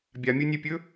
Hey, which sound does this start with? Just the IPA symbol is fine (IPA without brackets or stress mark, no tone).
bʲ